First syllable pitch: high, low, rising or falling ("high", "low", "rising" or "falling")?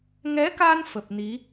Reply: rising